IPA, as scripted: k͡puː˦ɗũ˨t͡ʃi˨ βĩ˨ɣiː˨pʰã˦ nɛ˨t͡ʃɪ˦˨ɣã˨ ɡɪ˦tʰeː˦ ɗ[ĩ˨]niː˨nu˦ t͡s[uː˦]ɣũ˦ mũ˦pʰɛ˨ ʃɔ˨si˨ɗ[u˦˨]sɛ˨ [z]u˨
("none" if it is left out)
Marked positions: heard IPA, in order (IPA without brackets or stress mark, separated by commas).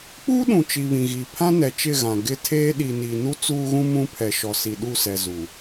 i˨, uː˦, u˦˨, z